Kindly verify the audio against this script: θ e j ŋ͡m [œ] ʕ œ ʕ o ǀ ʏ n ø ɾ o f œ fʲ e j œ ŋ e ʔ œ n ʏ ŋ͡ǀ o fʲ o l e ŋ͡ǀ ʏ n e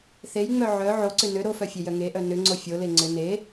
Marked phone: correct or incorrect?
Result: correct